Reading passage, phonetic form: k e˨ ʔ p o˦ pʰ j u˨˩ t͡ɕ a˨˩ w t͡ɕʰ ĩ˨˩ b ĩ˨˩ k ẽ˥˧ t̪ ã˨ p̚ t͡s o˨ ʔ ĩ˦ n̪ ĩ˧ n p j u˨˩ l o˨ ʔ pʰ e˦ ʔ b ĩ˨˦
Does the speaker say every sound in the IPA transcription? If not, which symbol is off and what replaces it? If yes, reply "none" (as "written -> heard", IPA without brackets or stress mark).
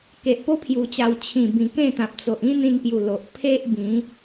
none